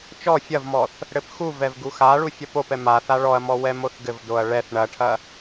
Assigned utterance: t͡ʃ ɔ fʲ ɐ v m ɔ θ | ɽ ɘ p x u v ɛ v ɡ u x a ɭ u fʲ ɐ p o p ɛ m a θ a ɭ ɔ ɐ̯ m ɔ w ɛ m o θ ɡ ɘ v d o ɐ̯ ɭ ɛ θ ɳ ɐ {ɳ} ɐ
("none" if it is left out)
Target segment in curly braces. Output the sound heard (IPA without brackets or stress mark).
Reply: ʈʰ